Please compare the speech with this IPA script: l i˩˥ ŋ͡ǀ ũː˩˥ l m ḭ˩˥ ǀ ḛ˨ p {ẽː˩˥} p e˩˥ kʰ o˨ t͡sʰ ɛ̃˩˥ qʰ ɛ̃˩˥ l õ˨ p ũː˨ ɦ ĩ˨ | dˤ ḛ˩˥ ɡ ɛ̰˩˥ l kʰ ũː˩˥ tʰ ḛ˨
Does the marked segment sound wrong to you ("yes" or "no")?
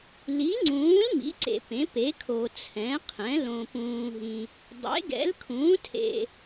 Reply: yes